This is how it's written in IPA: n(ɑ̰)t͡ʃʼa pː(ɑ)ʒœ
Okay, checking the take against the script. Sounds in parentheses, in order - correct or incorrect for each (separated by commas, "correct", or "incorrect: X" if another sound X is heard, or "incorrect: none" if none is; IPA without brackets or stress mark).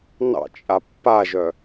correct, incorrect: a